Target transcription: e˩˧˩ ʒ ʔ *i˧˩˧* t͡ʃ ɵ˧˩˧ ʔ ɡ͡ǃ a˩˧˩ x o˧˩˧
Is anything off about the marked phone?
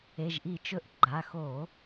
no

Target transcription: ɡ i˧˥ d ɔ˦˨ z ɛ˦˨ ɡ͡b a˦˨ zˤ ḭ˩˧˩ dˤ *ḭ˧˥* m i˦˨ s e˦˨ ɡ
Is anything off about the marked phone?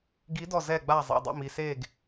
yes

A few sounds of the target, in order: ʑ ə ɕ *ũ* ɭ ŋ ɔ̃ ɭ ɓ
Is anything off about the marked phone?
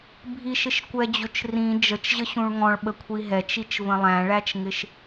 no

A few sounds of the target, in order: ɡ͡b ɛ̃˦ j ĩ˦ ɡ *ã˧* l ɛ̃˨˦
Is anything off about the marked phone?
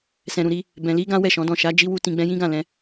yes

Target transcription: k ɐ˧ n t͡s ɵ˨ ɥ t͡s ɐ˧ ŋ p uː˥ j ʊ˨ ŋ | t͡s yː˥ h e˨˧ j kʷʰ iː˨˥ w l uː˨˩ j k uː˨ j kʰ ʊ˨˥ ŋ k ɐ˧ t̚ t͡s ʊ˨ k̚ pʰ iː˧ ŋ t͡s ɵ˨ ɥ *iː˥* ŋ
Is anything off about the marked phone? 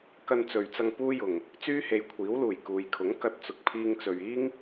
no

